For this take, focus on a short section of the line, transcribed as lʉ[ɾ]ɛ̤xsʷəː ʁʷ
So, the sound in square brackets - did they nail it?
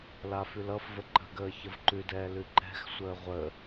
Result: no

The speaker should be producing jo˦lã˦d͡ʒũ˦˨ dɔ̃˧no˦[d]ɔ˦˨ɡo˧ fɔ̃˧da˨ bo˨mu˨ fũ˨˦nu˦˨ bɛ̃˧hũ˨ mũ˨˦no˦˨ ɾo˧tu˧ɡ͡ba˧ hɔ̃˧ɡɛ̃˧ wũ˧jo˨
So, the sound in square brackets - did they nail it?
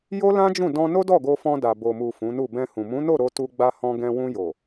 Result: yes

